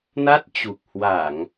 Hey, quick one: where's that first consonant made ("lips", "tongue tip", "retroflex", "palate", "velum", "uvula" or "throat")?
tongue tip